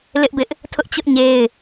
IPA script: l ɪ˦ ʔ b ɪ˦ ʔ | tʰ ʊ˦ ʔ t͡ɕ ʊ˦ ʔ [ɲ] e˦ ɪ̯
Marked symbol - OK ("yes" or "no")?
yes